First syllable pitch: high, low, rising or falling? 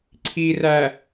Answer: low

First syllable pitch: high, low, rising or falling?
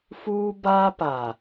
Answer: high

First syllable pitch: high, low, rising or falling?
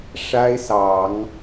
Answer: high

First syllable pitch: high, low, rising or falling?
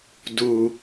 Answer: low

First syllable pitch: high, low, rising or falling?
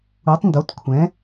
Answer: rising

